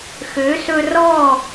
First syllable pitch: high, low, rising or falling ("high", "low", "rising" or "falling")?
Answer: rising